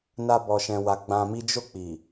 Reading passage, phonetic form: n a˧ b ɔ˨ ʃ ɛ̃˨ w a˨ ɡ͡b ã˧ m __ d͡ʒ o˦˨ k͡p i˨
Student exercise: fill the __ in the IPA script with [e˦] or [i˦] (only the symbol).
i˦